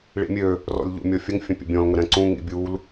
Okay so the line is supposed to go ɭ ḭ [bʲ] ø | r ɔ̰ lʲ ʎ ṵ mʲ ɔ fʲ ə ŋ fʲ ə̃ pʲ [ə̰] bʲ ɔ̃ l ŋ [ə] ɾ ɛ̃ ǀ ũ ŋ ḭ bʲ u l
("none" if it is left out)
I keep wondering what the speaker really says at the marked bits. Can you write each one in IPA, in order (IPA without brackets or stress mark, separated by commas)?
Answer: mʲ, ə̰, ə